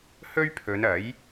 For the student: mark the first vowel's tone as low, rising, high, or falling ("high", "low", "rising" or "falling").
high